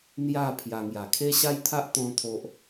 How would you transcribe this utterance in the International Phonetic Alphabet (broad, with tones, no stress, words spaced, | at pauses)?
n̪ja˥˧pʰja˧ ŋja˨˩kʰe˦ɕa˦jt̪ʰa˦ʔ t̪ɔ̃˦t̪ʰo˦ʔ